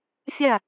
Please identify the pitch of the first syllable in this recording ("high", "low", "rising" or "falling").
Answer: falling